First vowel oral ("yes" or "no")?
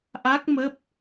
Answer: yes